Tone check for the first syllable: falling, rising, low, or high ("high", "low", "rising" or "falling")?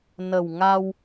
low